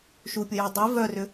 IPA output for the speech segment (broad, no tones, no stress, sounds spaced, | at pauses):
ʃ u pʲ ʊ j œ dˤ i v œ r ʏ